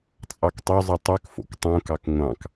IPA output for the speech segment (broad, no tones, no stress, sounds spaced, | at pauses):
t͡sʼ ɑ k tˤ ø zˤ ɯ tˤ ø k f o̰ k tˤ õ k ɑ k ŋʷ ɑ̃ k